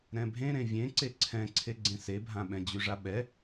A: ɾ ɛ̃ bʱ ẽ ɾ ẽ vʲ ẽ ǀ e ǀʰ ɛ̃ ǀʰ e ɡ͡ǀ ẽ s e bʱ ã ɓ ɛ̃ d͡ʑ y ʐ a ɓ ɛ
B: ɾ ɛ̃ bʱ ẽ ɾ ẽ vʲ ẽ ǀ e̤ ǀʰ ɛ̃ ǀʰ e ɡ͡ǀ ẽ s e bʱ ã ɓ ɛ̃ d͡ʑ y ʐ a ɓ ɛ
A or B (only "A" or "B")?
A